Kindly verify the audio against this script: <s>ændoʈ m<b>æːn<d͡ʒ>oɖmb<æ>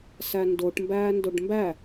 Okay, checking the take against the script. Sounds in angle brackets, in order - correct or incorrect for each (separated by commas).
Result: correct, correct, incorrect, correct